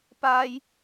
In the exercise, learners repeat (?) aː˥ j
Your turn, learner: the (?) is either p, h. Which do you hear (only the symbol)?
p